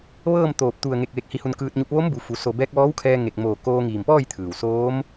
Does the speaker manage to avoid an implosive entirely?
yes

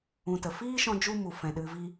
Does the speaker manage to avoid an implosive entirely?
no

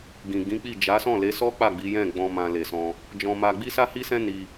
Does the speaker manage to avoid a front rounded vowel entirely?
yes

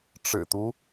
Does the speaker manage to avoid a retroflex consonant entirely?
no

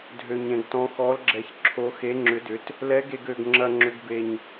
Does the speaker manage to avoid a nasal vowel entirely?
no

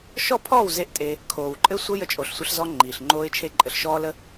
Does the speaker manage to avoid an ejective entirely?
no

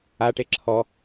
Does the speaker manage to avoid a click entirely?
no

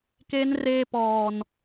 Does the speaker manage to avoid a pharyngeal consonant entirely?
yes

